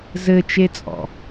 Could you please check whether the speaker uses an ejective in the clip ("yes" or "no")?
yes